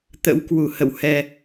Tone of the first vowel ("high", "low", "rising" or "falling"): rising